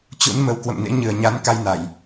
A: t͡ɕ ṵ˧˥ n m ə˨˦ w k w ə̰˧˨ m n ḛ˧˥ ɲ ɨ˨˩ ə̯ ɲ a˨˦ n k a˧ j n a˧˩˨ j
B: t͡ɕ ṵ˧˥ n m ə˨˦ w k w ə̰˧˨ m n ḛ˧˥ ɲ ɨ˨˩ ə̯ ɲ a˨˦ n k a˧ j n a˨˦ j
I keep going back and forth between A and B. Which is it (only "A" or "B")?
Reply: A